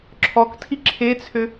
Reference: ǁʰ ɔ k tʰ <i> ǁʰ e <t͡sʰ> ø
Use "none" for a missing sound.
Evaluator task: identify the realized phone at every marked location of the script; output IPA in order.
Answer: i, t͡sʰ

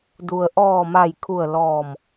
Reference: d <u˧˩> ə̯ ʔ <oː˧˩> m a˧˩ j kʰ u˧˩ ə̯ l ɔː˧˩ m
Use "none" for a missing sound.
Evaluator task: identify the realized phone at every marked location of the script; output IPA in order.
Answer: u˩, ɔː˧˩

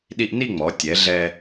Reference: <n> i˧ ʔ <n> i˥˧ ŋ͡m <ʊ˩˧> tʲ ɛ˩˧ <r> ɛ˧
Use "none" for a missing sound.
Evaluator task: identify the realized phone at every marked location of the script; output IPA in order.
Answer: ɗ, n, ɔ˩˧, ɮ

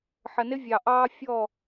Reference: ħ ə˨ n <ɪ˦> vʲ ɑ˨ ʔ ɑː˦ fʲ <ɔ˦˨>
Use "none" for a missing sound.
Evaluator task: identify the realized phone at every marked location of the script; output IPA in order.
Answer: ɪ˦, ɔ˦˨

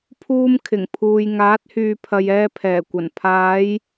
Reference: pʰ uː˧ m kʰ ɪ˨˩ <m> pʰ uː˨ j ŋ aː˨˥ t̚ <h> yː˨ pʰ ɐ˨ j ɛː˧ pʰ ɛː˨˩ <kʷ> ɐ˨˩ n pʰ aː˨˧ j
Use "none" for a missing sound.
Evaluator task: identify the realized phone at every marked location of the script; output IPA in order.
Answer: ŋ, h, kʷ

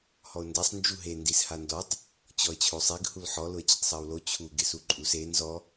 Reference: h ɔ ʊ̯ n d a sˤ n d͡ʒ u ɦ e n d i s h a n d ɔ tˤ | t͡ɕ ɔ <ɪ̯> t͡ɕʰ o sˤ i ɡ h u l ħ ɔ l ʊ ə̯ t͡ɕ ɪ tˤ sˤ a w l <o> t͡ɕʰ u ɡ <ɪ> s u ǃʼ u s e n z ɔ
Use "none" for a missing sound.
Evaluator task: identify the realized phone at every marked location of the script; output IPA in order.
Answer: ə̯, o, ɪ

